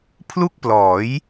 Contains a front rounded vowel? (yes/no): no